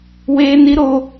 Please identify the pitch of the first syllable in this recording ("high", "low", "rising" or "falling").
high